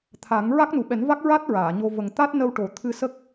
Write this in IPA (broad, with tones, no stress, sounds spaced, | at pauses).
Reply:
t̪ʰ a˨˩˦ ŋ ɹ a˦˥ k̚ n u˨˩ ɓ ɛ˨˩˦ n v a˦˥ k̚ ɹ a˦˥ t̚ ɹ aː˨˩˨ ɲ o˧ v ə˨˩ ŋ t̪ a˦˥ t̚ n ə˧ w ʈ o˨˩ t̪ʰ ɨ˧ s ə˦˥ k̚